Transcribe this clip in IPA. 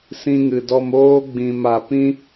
s ĩ˧ ŋ ɨ˨ d ɔ˧ m oː˧ ɡ͡b ĩ˨ m a˨ p ĩ˦

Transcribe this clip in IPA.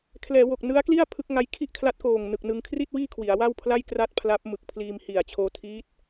kʰ l ɛː˩˦ w o˨˩ k̚ n ɯ˦˥ a̯ k l i˥˩ a̯ pʰ ɯ˦˥ k̚ ŋ a˦˥ j kʰ i˥˩ ʔ kʰ l a˦˥ t̚ k oː˨˩ ŋ n ɯ˨˩ k̚ n ɯ˧ ŋ kʰ r i˥˩ t̚ w iː˥˩ kʰ w i˩˦ a̯ w a˥˩ w pʰ l a˥˩ j k r a˥˩ t̚ pʰ l a˦˥ p̚ m ɯ˨˩ k̚ pʰ l iː˧ m h i˨˩ a̯ t͡ɕʰ oː˦˥ tʰ iː˦˥ t̚

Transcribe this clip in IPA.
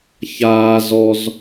ç aː z ɔ z

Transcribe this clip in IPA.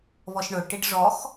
β ɔ ʃ ɳ ɵ ʈ i ɖ ʐ ɔ x

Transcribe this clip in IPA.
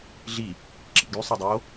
ɮ i | ǁ ḭ ɡ y sˤ ɑ dˤ o

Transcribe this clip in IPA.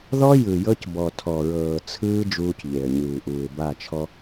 ð ɔ˦ j ɯ˨ j ɤ˦ c b ɔ˨ tʰ ɔ˨ ɹ ɤː˨ t͡sʰ ɯː˦ d͡ʒ uː˦ c ʎ e˨ ə̯ ɲ ɯː˨ ʔ uː˨ ɪ̯ b a˦˨ t͡ʃʰ ɔ˦

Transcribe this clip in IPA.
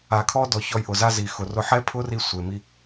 a˨ kʰ ɔ˦ d ɔ˨ ç ɔ˧ j ʔ ʊ˨ z a˦ z i˨ x ʊ˨ r ʊ˧ ħ ɛ˦ pʰ ʊ˦ r i˧ sʷ e˨ m i˦

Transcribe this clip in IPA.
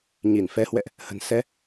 ɲ i˧˩ n f ɛ˨˦ h w ɛ̰˧˨ ʔ | h ə̤˨˩ n s ɛ˨˦

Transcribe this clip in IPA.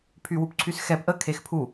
pʰ y w u p ǀʰ y s x ɛ p ʔ ə kʰ e x pʰ u

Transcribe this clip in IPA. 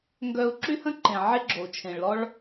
ŋ ɡ œ˧ u̯ ǁ y˥ h ə̃˥ ǃ ẽ˩ ʕ e˥ ɡ͡ǁ o˩ u̯ t͡ʃʰ ẽ˩ ɭ l ɔ˥ ɭ

